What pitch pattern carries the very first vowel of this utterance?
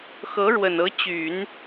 rising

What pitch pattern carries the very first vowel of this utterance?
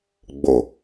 low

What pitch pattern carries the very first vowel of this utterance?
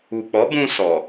low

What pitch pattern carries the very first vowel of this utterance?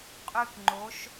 high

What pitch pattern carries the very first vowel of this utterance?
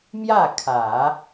falling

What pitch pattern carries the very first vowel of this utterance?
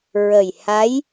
low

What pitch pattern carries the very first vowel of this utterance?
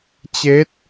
rising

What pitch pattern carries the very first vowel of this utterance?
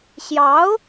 rising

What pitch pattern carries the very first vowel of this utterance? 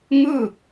falling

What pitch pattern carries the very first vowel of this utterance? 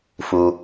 low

